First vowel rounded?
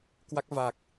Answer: no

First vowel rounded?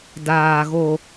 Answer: no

